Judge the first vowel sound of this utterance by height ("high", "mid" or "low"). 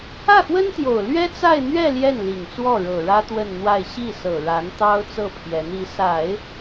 low